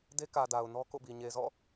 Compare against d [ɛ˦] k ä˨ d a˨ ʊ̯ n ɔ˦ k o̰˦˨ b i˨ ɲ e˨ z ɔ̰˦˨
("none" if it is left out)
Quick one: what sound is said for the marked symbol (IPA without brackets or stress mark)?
e˦